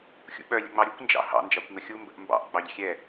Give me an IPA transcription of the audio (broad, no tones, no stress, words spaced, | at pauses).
xʲṵɓœ lʲə̰ŋ͡mɑɾʲukʷ nd͡ʒɑ̰hɑ̰ nd͡ʒɑkʷŋəxʲu mbə̰ʔmbɑ̰ʔ ɡ͡bɑʎxʲɛ